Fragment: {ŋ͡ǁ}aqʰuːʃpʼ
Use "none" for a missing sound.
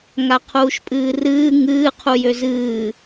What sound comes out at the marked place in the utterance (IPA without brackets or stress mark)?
ŋ